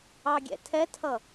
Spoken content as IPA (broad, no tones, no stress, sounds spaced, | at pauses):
ɑ ɡʲ ɛ̰ tʰ ɛ tʰ ʌ